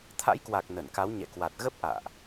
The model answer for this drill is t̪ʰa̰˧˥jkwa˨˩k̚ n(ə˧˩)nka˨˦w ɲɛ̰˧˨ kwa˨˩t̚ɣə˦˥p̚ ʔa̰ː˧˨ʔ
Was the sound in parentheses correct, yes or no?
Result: yes